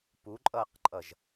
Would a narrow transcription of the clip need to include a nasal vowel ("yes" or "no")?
no